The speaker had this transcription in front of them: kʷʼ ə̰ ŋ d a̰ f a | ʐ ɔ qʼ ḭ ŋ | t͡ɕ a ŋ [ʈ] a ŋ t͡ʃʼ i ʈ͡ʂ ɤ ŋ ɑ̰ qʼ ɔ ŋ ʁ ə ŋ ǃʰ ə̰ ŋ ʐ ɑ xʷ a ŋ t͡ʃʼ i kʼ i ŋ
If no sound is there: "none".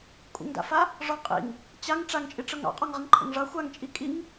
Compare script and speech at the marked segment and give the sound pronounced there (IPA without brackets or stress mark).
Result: ʈ͡ʂ